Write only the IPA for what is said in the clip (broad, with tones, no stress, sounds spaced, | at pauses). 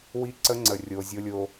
w i˦ ǀ ə˦ ŋ͡ǀ ə˨ rʲ o˨ zʲ o˦ lʲ o˦